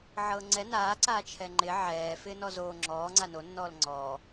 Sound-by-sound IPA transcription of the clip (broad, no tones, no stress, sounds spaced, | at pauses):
ʕ ɤː ŋ͡ǀ ɛ n aː ǀ aː t͡ʃʰ ɛ ŋ͡ǃ ɪ ʕ ɛː f ɪː n ɔ z oː ŋ͡ǁ ɔː ŋ͡ǀ a n o nː ɔː l ŋ͡ǀ ɔː